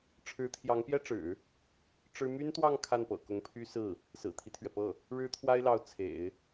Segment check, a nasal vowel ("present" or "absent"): absent